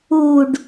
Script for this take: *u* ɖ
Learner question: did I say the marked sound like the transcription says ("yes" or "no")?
yes